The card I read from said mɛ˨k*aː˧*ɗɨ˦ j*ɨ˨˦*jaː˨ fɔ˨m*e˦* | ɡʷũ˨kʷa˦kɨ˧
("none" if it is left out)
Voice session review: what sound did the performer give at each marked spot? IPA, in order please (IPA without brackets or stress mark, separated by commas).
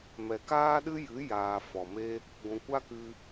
aː˦, ɨ˨˦, e˦